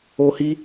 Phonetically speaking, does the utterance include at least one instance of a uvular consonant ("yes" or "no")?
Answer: no